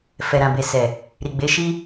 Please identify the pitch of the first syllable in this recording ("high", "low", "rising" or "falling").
low